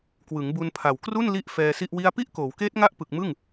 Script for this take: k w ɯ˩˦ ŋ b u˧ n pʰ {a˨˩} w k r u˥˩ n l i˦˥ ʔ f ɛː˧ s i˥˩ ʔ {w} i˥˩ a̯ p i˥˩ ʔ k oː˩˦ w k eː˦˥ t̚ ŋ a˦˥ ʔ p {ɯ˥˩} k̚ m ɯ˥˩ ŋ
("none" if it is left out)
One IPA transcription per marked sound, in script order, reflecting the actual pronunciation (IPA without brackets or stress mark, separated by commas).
a˨˩, w, ɯ˨˩